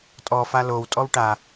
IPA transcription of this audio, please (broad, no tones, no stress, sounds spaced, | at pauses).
tʼ ɔ f a l o w tʼ ɔ w ʈ a